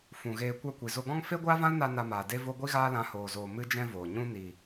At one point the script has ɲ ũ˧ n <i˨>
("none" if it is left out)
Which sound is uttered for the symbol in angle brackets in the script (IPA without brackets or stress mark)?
i˨